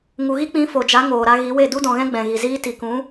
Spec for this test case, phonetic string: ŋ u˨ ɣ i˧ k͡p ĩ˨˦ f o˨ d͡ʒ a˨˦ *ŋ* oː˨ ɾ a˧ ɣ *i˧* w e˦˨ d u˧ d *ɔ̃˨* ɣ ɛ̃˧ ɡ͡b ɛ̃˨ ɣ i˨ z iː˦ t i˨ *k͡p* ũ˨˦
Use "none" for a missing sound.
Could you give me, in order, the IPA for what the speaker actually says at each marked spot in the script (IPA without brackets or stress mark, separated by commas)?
ŋ, i˨˦, ɔ̃˨, k